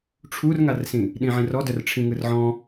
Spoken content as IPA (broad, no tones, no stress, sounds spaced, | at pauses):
ʈ͡ʂʰ u r ŋ a r s ĩ | ɗ ĩ ʕ ĩ r ɔ d œ r ʈ͡ʂʰ ĩ ŋ ɯ r ʕ ɔ̃